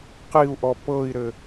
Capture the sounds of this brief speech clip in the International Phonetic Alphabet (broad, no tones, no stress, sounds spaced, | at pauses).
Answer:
q i u̯ ʔ ɔ p ɤ i̯ ɾ ɘ